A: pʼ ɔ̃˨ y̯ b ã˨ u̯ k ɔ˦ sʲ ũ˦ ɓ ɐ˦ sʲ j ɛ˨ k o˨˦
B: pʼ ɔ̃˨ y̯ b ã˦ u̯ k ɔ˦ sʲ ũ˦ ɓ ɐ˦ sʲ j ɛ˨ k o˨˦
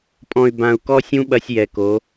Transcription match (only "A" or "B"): A